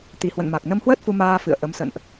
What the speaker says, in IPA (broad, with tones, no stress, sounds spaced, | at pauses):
t̪ i˨˩ h w ə̰˧˨ n m a˨˩ k̚ n ə˧ m h w əː˦˥ t̚ f u˧ m aː˧ f ɨ̰˧˨ ə̯ ʔ ə˨˦ m s ə̰˧˨ n ʔ